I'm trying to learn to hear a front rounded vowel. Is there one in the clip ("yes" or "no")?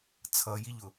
no